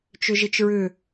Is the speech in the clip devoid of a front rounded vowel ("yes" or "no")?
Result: no